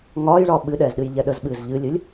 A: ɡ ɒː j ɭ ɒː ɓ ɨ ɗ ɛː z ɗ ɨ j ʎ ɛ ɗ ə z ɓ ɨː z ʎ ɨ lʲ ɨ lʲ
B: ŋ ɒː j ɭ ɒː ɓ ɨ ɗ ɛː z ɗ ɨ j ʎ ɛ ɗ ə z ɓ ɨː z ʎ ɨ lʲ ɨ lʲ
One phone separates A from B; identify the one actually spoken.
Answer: B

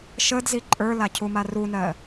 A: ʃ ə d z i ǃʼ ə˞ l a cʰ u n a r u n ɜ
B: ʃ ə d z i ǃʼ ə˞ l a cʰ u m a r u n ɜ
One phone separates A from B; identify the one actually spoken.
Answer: B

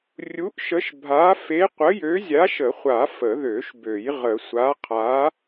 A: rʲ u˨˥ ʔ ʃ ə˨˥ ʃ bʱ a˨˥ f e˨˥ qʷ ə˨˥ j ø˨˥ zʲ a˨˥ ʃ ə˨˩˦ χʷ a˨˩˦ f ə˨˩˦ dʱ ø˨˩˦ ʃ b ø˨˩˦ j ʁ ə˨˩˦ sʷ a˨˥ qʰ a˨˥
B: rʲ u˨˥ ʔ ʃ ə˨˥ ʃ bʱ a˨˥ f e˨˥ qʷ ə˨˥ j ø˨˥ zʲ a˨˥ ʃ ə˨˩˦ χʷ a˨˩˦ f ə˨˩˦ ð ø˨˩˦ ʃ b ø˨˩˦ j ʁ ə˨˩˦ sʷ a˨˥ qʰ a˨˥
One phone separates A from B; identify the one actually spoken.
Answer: B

